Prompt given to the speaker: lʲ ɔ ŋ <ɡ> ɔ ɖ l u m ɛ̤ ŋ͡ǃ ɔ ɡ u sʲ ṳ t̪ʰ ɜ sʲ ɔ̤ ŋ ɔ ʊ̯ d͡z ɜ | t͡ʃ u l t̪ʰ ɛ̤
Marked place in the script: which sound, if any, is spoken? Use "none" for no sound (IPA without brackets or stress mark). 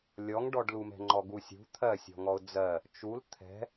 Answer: ɖ